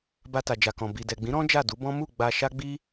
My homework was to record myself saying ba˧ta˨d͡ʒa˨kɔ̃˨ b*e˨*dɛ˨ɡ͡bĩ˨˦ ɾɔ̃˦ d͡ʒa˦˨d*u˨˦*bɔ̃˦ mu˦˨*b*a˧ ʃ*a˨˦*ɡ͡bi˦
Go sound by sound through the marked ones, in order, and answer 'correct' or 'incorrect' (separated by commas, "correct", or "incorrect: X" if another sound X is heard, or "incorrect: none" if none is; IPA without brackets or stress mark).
incorrect: i˨, correct, incorrect: ɡ͡b, incorrect: a˦